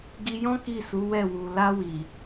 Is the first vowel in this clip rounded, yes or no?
no